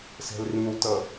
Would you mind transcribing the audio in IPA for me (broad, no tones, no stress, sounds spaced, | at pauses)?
s ɛ̤ l r ĩ w t ʌ